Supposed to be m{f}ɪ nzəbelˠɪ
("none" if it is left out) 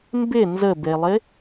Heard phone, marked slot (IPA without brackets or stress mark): b